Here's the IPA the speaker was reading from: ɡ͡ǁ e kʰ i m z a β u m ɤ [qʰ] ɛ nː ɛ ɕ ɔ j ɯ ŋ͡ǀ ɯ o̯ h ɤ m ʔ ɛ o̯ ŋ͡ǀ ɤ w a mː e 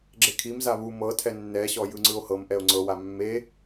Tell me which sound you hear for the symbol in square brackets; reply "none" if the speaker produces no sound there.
tʰ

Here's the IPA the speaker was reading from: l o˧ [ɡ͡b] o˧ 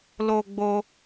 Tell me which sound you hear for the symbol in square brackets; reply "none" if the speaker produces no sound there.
ɡ͡b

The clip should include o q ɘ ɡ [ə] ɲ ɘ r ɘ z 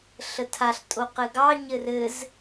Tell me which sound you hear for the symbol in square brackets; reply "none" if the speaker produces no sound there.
ɑ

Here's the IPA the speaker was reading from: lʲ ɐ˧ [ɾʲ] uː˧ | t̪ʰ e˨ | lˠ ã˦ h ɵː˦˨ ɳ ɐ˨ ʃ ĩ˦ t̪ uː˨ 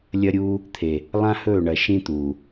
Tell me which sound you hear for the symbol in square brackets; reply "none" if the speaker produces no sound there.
ɾʲ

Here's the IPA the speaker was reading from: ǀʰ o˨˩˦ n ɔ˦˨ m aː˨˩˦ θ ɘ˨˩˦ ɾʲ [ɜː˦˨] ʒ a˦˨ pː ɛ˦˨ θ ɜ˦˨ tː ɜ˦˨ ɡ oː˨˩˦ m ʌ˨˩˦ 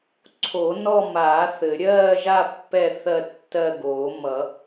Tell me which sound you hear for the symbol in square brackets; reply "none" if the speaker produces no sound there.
ɜː˦˨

